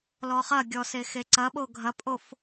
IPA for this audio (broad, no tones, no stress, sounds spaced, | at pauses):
l ɔ χ ɐ ɡʲ ɔ s e x e ǀ ɐ ɓ o ɡʱ ɐ pʼ o f